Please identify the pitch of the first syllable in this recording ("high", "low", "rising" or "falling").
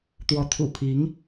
rising